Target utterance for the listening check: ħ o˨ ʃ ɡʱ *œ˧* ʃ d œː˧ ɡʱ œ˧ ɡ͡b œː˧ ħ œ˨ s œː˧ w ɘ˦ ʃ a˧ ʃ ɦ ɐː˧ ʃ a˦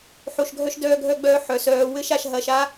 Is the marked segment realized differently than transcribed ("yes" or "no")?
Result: no